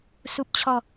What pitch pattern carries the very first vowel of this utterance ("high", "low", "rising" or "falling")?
low